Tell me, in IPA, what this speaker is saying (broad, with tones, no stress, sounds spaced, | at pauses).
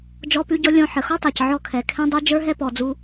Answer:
d͡ʒ ɔ˦ p ʉ˦ ɟ ɔ˦ lʲ ɔ̃˧ ħ ə˨ x ɔ˦ tˤ ɛ˨ c ʕ ɔ˦˨ kʰ ɛ˨ kʰ ɛ̃˦ dˤ ʉ˦ d͡ʒ ə˞˦ ɦ ɛ˦ p ɔ˨ d͡z u˧